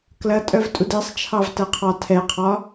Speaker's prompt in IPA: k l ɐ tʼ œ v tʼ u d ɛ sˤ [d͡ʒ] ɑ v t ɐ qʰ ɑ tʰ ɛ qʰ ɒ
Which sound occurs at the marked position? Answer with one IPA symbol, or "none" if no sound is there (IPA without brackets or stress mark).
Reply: t͡ʃʰ